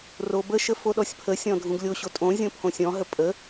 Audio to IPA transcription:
r o b ə ʃ ə f o ɗ ɔ sʲ pʰ ə sʲ ɔ̃ dʱ ũ ɡ lʲ o ɕ o tʼ õ zʲ õ pʰ õ sʲ ɔ̃ ɦ ə pʼ ə

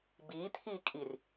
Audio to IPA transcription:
b iː t̪ʰ iː kʼ i r

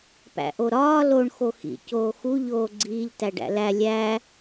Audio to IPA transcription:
p æ̰ ʔ o ɾ ɒː l o ɳ x o x ḭ c oː x u ʎ oː ɡ͡ǀ iː ʎ t æ ɖ æ̰ l æ lʲ æ

